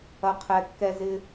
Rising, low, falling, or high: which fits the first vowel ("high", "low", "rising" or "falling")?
high